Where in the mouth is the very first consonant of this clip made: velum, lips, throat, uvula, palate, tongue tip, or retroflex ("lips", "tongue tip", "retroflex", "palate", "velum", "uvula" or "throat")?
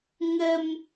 velum